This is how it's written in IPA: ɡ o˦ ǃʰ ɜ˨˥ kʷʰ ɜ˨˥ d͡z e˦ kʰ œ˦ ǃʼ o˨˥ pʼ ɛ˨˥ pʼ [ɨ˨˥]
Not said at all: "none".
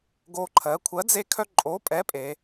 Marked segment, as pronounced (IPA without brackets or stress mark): e˨˥